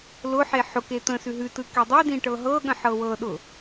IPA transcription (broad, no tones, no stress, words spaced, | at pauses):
lʊħe ħʊke t̪ə̃sʉ ɦʉtɯ kedˤidĩ ʈɤɦɤɠə̃ ħɤwɤɗʊ